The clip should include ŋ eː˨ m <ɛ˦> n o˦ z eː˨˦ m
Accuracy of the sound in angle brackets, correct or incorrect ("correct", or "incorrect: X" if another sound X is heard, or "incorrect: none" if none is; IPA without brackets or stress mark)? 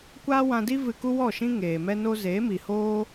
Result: correct